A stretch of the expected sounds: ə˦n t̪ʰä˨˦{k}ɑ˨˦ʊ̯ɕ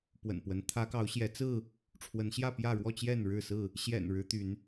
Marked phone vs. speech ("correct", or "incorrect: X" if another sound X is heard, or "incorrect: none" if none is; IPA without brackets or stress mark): correct